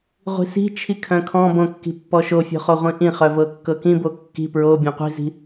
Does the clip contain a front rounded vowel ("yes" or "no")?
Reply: yes